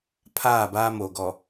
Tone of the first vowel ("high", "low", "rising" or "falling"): falling